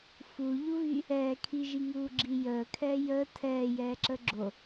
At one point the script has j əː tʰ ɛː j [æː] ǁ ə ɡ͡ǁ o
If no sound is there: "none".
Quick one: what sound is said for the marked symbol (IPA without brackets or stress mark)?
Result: ɛː